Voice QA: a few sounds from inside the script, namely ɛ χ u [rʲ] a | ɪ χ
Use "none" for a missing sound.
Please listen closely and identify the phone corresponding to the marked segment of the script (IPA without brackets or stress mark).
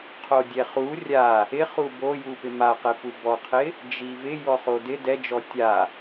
rʲ